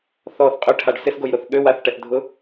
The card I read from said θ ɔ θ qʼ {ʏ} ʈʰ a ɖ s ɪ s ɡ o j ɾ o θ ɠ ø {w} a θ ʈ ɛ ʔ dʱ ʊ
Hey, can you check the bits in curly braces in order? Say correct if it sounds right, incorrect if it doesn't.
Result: correct, correct

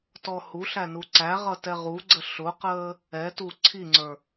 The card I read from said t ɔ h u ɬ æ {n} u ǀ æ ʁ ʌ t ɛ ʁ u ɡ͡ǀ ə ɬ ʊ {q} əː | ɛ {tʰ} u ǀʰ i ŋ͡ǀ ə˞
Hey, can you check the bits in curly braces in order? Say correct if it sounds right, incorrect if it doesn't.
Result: correct, correct, incorrect

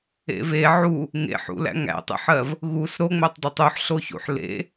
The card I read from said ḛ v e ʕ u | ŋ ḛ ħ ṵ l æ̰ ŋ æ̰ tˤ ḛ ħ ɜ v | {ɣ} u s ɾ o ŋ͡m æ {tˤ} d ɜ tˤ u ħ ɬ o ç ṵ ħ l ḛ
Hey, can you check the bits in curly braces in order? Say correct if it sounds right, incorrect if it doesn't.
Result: correct, correct

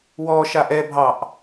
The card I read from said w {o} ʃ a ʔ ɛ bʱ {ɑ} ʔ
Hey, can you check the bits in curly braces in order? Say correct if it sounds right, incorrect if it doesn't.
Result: incorrect, correct

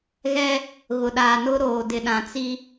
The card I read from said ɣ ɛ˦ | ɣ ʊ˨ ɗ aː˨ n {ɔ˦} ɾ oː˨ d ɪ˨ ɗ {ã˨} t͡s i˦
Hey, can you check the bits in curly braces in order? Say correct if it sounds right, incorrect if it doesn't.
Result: incorrect, correct

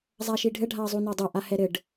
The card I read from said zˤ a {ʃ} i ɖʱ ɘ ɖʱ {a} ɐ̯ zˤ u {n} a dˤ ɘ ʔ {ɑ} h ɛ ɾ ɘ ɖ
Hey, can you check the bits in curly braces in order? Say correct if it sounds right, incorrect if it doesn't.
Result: correct, correct, correct, incorrect

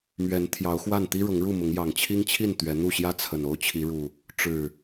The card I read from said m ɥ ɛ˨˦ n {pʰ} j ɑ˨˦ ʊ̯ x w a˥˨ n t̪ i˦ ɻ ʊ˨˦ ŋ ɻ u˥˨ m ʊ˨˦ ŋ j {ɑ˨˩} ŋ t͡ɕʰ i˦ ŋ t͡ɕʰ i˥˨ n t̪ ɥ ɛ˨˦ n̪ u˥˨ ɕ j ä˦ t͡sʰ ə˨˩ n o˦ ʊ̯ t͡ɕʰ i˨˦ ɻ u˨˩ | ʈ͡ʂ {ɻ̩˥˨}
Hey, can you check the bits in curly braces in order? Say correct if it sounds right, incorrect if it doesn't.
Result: incorrect, correct, incorrect

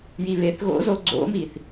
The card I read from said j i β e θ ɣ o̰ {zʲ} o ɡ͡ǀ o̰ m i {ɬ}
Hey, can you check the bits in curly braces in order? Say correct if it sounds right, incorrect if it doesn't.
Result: incorrect, incorrect

